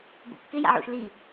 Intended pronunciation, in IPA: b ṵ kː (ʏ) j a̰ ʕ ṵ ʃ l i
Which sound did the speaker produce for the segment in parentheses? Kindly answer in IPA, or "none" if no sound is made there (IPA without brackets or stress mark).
ɪ